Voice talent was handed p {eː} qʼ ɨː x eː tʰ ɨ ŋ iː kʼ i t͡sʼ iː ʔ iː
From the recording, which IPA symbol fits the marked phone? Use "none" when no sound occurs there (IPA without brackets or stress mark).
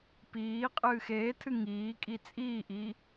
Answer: iː